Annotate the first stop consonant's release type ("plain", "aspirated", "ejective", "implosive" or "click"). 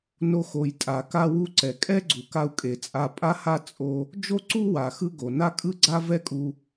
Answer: ejective